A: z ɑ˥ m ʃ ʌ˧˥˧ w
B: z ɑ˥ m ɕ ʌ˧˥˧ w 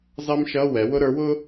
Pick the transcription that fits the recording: A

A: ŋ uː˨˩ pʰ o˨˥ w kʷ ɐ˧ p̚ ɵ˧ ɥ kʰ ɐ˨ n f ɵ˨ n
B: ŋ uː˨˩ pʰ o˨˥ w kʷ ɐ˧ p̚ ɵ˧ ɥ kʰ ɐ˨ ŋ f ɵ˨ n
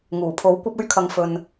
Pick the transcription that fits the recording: B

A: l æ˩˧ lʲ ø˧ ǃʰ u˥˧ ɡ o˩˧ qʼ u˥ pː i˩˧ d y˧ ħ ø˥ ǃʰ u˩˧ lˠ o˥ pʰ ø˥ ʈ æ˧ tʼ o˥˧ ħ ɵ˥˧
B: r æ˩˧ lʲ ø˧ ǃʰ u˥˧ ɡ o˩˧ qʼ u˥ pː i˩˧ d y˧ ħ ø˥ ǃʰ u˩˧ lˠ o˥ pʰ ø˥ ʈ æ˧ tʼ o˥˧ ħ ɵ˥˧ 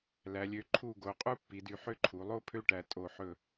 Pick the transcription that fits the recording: A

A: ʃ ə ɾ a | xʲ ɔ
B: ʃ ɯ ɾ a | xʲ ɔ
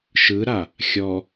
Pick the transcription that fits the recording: B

